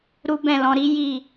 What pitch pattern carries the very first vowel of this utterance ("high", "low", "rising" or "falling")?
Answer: high